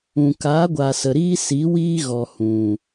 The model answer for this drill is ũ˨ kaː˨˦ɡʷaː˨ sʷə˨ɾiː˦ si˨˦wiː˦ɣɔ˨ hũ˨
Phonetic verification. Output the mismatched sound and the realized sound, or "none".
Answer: sʷ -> s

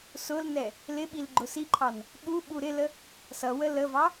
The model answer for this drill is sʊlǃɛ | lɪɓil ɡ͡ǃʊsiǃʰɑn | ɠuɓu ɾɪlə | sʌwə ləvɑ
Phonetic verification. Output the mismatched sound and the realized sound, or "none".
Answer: ǃ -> n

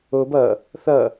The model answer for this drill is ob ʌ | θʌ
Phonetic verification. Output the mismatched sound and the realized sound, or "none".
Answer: none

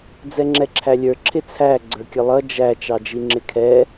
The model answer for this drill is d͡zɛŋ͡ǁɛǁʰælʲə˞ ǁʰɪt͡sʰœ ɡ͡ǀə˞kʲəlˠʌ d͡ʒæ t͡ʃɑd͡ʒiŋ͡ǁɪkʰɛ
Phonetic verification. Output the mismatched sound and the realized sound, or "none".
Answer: œ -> æ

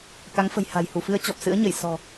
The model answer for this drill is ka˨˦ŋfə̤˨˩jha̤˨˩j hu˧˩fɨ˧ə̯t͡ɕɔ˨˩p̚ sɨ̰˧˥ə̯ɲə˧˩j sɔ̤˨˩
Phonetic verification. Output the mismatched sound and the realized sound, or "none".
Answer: none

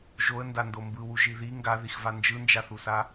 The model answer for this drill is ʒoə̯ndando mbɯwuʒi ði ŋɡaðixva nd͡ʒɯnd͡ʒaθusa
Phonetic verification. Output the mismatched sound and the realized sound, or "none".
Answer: none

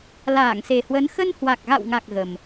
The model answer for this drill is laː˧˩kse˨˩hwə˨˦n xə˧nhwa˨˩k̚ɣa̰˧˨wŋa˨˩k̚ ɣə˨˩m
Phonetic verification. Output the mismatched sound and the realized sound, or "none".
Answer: k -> ŋ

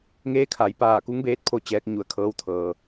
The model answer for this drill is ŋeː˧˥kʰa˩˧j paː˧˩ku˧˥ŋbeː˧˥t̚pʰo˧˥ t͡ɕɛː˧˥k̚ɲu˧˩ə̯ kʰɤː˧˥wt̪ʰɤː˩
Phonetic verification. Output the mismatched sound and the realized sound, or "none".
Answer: none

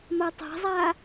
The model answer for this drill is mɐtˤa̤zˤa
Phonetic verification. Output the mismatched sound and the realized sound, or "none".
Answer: none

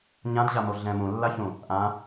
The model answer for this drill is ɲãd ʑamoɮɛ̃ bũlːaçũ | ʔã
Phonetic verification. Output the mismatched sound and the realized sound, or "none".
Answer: b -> m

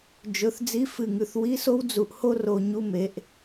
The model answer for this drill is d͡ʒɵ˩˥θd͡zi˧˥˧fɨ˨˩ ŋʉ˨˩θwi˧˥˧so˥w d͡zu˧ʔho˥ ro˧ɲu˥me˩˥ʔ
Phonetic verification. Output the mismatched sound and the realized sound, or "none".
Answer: none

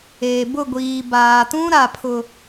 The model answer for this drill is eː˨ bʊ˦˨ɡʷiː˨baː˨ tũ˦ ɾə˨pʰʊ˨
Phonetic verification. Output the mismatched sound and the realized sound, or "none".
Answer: ə˨ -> a˨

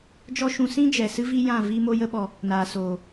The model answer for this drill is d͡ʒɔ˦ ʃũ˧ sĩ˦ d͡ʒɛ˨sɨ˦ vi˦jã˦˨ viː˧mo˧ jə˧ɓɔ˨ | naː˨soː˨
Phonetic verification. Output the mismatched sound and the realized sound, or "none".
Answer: none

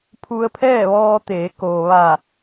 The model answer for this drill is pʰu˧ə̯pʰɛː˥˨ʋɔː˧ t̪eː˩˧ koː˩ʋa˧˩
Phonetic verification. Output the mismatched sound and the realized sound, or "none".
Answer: none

